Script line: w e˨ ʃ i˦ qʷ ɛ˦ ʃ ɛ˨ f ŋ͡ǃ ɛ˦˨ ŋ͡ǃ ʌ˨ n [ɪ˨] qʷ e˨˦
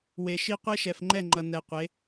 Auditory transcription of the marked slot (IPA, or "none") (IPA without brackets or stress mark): ɛ˨